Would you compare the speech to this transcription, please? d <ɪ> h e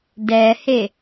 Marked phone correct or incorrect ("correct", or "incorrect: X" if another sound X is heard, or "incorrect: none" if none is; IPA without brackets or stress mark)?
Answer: incorrect: ɛ